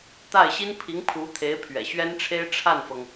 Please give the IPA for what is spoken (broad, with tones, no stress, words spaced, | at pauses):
t̪a˥˩ɪ̯ ɕi˥npʰi˧˥ŋpʰu˧˥t̪ʰe˧˥ɪ̯ pʰɥɛ̰˨˩ɕɥɛ˥nʈ͡ʂʰe˥ɪ̯ ʈ͡ʂʰa˥˩nfɤ˩ŋ